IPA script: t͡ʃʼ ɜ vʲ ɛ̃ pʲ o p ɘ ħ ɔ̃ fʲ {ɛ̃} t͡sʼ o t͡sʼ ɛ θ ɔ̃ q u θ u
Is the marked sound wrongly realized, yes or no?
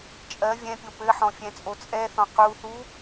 no